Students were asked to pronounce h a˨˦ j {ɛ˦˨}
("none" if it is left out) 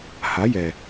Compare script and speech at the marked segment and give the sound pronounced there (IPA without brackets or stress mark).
ɛ˨